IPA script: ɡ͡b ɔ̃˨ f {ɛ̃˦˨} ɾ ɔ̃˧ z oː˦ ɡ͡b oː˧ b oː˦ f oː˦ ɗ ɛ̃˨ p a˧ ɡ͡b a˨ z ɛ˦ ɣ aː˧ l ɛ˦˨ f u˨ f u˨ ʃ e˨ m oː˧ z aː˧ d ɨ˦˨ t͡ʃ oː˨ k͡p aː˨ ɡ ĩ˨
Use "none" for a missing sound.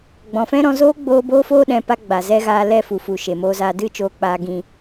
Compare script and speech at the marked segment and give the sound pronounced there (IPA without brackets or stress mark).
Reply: ɛ̃˦